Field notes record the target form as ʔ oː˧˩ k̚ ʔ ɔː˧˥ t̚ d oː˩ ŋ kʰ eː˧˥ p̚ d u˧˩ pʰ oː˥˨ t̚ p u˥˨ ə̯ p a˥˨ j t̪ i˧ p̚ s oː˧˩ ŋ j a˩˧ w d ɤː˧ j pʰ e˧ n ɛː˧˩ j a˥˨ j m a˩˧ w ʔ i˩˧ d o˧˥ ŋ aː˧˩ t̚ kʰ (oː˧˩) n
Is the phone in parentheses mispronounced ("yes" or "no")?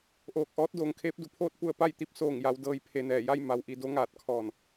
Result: yes